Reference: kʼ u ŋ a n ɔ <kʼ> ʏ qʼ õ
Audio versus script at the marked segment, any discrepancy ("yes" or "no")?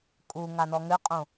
yes